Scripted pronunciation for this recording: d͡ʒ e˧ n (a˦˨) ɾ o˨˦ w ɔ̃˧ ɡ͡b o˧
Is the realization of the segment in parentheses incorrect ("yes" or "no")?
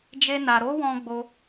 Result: yes